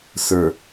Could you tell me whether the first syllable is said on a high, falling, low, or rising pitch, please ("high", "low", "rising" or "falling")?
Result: low